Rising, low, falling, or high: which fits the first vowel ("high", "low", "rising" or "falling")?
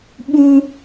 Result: high